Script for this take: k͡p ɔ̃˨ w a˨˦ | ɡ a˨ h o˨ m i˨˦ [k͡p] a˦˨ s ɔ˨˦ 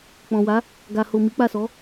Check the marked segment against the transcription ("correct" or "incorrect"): correct